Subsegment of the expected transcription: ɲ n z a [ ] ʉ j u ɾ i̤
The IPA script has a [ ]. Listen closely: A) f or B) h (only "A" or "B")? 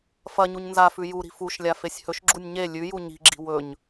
A